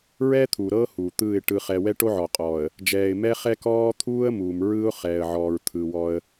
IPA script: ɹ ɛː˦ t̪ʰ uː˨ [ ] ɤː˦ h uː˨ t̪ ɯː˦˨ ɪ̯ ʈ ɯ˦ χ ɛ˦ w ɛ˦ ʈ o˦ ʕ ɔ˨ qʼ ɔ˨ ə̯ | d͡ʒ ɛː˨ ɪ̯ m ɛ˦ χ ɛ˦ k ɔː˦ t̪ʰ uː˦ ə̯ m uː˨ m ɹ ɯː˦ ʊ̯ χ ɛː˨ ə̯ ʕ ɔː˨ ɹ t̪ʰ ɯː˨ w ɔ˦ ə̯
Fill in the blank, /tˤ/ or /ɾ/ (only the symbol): ɾ